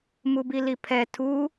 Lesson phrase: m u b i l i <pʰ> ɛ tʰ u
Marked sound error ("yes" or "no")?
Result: no